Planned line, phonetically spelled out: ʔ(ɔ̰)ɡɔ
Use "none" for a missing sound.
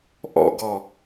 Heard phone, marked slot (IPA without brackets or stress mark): ɔ̰